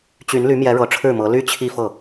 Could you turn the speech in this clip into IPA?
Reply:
t͡ɕy˧˥nly˧˥ mjɛ˧˥ɻɤ˧˥ʈ͡ʂʰɻ̩˥˩mɤ˧˥ ly˥t͡ɕʰi˥˧fɤ˥˩

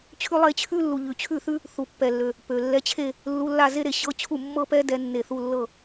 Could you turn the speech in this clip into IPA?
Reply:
t͡ɕʰʉ˥lˠe˥˧ t͡ɕʰʉ˥lːu˨ ʎʉ˨t͡ɕʰʉ˥˩θʉ˥ | θu˨pːɛ˨lːø˨ | pø˨ lːɛ˧˥˧t͡ɕʰe˥˧ | lːu˧˥˧lːa˥˧ze˥ɾe˨ ɕɤ˧˥˧t͡ɕʰu˥˩ mːɤ˥˧pɛ˥ dɛ˥nːe˥˩ θu˥˧lːɤ˥˧

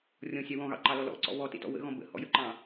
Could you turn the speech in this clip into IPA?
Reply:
rʲɔ̃sʲɑ wɔ̃ɣɑ̰ǃɑlɔ lɔ̰ǀɔ̰ βɔtḛtɔ̰ wə̰ɣɔ̃ bə̰hɔ̰jəǃɑ̃

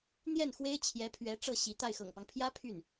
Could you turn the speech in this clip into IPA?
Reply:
n̪jɛ˥˩nxwe˥ɪ̯ t͡ɕʰjɛ˧˥pʰɥɛ˧˥ ʈ͡ʂɤ˥˩ɕi˧˥t̪a˥˩ɪ̯ xɤ̰˨˩ŋpɑ˦ŋpʰjä˥ pʰy˥˩n

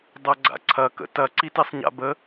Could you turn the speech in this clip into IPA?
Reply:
dˤɐɡ͡ǀa̰ǀʰɐ kə̰tɐ ǀitesˤɲa̰bə

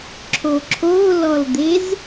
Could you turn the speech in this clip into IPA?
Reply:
ǁʰoǁʰolɔld̪ez

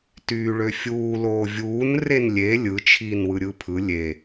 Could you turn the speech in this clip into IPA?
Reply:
tyːɭøfʲuː loːvʲuːn renlʲe lʲɯ t͡ʃʰiːnwɯɾʲɯpʰɯ lʲe

